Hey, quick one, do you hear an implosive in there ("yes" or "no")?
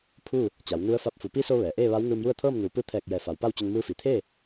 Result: no